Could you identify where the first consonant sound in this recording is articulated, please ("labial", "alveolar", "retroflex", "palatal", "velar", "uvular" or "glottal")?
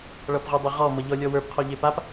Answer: retroflex